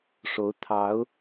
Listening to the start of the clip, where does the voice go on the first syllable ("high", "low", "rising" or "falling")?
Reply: rising